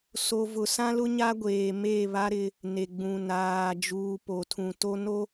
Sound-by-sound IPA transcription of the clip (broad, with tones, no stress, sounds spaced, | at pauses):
s o˨ v ʊ˨ s ã˦ l ʊ˦ ɲ a˦ ɡʷ eː˨ m e˦˨ β a˦ ɾ ɪ˦ | n e˨ ɡ͡b ũ˨ n aː˨ d͡ʒ uː˨ p o˨ tʰ ũ˨ t o˦ n o˦